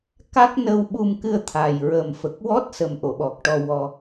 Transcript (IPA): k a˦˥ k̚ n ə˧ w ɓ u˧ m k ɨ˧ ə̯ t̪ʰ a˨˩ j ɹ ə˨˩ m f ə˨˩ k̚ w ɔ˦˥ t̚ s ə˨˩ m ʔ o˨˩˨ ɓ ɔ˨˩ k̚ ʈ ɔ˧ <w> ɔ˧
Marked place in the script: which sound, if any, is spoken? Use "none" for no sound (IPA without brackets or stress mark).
w